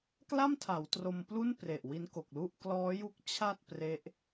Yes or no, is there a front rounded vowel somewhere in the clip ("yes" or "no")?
no